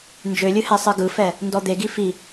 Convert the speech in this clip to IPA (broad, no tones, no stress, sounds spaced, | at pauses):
n d͡ʒ ø lʲ ɨ h ɛ sˤ ɨ ɡ ɯ f ɛ | n d ɔ d̪ e ɡ i f i